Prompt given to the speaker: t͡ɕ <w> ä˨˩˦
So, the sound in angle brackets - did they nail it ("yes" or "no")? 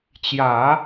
no